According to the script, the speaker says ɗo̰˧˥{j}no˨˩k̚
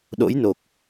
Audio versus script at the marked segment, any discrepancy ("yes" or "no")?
no